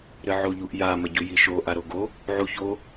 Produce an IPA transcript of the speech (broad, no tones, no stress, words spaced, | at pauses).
ɾɘʕoʎuʔja mɐɟujiʃo ʔaɾoɡo | ʕuço